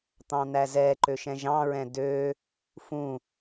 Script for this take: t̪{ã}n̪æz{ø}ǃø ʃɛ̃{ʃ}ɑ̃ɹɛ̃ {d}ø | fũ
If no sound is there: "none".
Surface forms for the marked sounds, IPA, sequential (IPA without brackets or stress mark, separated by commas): ɑ̃, ɛ, ʒ, d